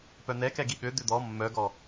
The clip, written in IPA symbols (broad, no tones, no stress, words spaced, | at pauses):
pœn̪ɛkɛ ɡiɠø d̪ʏd̪ɔ mːœɡɔ